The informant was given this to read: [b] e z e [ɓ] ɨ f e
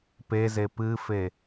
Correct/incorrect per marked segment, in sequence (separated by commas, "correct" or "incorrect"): incorrect, incorrect